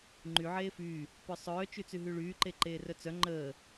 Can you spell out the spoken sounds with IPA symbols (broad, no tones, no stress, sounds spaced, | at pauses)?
ŋ͡ǃ y ʕ eː f yː | p œ sˤ œː t͡ʃ y t͡s y ɦ y ɭ yː ǃ e ǃ eː r œ t͡s œ ŋ͡ǃ əː